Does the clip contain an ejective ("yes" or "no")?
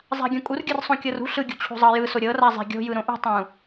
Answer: yes